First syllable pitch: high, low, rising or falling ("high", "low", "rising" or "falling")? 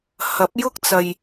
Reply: rising